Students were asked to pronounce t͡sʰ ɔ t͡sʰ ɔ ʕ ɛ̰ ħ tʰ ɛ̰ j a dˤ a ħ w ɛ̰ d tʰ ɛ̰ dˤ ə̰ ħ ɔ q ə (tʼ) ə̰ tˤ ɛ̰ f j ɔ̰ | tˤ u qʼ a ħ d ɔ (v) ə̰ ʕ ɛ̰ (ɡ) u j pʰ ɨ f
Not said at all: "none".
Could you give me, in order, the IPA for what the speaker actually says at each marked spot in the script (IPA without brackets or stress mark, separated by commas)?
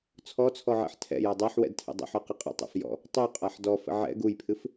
qʼ, f, ɡ